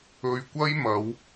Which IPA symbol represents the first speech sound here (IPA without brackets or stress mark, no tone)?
ɵ